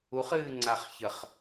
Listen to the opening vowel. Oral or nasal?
oral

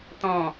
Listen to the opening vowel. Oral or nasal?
nasal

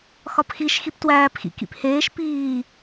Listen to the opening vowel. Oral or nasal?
oral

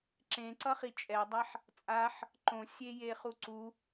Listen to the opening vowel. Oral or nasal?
nasal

